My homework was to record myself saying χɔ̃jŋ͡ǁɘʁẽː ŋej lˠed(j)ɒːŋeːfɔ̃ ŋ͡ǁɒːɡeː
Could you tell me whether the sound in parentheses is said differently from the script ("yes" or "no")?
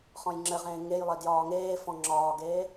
no